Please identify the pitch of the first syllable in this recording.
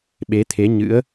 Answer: rising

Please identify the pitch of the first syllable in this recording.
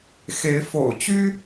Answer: rising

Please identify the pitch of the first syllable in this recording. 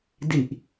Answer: low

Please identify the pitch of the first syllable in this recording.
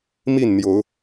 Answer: falling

